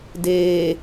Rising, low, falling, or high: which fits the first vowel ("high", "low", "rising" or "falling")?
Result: low